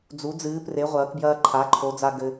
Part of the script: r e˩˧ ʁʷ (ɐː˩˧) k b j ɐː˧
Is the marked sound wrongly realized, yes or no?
no